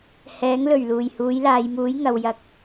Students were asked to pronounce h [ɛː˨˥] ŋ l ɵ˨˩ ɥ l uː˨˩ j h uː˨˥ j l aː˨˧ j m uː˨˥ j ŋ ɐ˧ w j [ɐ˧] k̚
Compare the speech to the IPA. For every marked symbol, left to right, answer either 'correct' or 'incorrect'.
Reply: correct, incorrect: ɐ˥

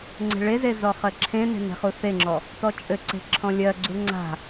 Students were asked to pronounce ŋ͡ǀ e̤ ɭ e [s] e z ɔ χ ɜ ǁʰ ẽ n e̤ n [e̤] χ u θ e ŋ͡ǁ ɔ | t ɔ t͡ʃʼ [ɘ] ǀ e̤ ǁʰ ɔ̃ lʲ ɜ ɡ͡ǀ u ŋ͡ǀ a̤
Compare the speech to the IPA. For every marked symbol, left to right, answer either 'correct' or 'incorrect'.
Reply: incorrect: z, correct, correct

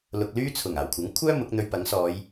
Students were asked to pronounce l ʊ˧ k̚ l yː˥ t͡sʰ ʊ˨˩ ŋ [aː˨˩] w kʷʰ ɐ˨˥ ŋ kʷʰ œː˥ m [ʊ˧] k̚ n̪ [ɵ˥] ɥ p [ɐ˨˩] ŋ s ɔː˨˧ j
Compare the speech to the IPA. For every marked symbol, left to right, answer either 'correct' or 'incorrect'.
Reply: correct, incorrect: ʊ˨˥, incorrect: ɵ˧, incorrect: ɐ˨˥

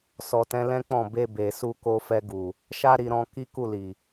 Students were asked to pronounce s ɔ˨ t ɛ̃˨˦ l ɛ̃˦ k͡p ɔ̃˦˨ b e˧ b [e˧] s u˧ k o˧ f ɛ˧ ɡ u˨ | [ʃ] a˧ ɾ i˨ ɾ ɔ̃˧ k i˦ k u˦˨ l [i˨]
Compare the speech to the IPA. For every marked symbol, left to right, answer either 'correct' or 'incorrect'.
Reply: incorrect: e˨, correct, correct

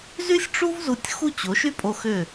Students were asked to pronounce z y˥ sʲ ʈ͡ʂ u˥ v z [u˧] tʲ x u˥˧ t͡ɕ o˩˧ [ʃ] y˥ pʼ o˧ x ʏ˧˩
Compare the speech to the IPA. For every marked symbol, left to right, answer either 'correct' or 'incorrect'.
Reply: correct, correct

